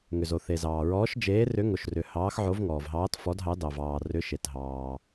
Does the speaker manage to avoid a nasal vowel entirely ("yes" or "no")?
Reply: yes